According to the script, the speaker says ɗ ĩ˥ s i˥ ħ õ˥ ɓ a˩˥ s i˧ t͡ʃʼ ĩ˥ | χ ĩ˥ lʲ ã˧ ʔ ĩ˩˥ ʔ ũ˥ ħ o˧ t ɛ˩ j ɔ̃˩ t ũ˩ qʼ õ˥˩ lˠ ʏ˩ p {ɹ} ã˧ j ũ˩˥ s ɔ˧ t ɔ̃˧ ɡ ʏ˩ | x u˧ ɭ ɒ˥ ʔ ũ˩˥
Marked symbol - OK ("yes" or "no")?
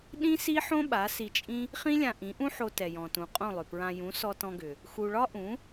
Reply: yes